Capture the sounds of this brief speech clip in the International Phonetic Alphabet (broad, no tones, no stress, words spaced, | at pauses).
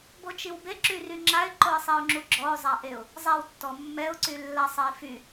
bot͡ʃiwbe ǁyryŋ͡ǁaɪ̯ ǃoɪ̯sˤeʊ̯ŋ͡ǁuɡ͡ǁɔʊ̯ zˤaʔeʊ̯ | zˤɛw tːɔmːɛʊ̯ ǀylːasˤɛɪ̯fy